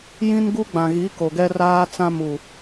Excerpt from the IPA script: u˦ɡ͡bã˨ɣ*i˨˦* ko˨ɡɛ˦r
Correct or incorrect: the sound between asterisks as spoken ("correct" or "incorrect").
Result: correct